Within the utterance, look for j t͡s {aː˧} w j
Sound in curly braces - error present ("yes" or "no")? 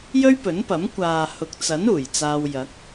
no